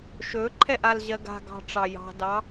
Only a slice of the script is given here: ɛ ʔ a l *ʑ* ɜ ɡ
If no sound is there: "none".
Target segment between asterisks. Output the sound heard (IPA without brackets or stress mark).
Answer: ʑ